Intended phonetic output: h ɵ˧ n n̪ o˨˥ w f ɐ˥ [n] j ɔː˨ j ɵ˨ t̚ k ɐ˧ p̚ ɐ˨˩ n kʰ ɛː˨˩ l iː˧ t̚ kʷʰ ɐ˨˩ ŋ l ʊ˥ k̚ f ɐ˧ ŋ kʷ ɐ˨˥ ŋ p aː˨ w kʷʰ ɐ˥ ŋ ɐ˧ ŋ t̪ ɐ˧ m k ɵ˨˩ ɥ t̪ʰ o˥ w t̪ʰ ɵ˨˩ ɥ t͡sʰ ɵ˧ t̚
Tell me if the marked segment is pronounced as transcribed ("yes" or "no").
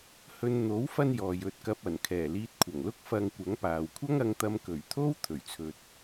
yes